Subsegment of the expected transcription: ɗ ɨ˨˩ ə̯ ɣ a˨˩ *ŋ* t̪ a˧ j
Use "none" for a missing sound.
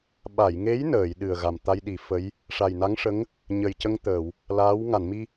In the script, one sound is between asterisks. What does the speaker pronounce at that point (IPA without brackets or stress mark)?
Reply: m